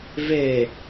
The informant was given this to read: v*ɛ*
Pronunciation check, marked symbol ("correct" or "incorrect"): incorrect